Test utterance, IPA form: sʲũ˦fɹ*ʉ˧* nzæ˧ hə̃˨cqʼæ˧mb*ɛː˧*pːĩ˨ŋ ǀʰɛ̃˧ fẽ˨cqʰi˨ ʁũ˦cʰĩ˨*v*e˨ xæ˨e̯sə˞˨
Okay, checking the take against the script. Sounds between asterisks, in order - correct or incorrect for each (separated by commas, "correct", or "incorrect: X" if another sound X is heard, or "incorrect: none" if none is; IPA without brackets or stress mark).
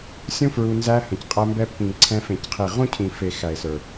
incorrect: u˧, incorrect: ɛ˧, incorrect: f